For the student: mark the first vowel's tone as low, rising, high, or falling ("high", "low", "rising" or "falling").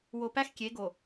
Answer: low